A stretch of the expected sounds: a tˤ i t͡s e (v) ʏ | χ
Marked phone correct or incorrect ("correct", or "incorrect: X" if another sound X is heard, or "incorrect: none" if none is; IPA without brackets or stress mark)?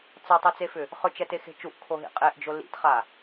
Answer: incorrect: f